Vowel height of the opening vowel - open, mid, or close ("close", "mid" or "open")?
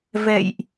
mid